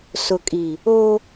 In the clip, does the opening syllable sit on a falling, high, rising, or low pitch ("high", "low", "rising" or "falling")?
low